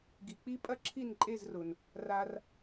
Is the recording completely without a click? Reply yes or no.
no